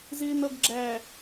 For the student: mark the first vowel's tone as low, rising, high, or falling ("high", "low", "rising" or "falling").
low